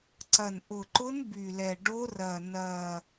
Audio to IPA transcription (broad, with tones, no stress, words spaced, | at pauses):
ǀɐ˨˩n ʔʊ˨˩ǃʊ˧˥n by˨˩lɛ˨˩ ɖo˧˥rɐ˨˩ nɐː˨˩